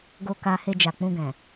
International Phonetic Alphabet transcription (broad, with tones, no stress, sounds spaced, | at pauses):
ɡ o˧ k a˧ h e˧ d͡ʒ a˨ k͡p ũ˧ ɡ ɛ̃˨